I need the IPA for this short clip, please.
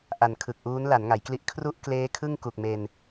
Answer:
ʔa˨˩nkʰɯ˨˩k̚ʔuː˦˥n la˩˦nŋa˩˦jkli˦˥ʔ kʰru˥˩ʔ kleː˦˥kʰɯ˥˩ŋ ku˨˩k̚me˧n

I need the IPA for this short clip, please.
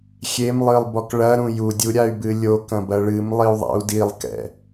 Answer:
xʲemlˠɨlˠbɔk ɭɐɾũ judʲuɾʲay̯bɨ lʲo kɐ̃bɐɭɨmlˠiu̯ ðˤa̰u̯dilˠkɛ̰

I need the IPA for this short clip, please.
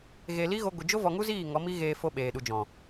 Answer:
ɣe˧li˦ ɣo˦ɡʷɨ˧ d͡ʒo˦ vɔ˧ŋu˦ziː˦˨ ŋɔ˨˦mi˦ɣeː˧ fo˧ ɓeː˨ɗu˨d͡ʒɔ̃˨

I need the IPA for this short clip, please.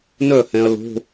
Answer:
nœ˥˩hɛ̃˨ɐ̯ lo̤˧˥˧

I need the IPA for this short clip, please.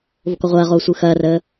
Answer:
vokɔʁʷɐːʁoː sʷɯxɐːrəː

